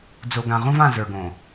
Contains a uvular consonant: yes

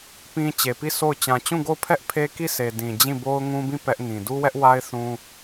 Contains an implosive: no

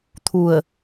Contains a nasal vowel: no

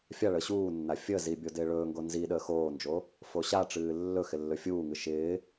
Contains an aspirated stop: no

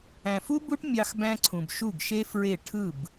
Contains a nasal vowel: yes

